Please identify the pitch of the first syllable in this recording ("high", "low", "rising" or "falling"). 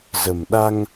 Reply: low